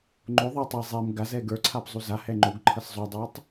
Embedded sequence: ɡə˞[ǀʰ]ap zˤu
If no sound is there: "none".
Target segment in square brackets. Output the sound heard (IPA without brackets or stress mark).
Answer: ǀʰ